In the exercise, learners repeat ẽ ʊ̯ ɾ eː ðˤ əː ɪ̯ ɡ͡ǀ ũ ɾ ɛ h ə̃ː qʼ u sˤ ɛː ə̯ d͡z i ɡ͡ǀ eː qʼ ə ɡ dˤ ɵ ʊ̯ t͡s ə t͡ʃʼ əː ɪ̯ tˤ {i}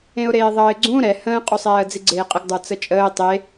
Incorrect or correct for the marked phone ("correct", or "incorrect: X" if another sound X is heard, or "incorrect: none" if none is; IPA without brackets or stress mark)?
incorrect: e